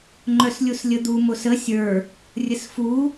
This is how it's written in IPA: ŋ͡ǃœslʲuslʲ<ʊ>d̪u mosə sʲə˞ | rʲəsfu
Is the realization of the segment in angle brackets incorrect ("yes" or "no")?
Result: yes